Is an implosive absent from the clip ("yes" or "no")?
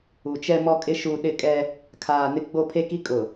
no